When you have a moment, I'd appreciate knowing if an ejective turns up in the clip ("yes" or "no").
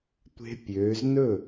no